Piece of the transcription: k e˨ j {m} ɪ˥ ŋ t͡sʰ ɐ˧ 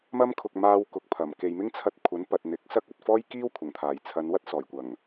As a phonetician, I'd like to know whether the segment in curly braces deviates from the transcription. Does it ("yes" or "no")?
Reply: no